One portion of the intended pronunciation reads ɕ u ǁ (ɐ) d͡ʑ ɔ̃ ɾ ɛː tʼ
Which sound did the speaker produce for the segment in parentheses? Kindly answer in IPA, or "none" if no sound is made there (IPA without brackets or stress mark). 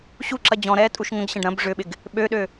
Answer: ɐ